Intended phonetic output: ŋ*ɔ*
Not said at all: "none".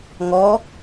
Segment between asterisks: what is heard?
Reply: ɔ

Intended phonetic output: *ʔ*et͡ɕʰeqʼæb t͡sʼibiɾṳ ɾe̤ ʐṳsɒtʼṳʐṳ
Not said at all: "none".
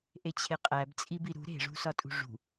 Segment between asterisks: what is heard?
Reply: ʔ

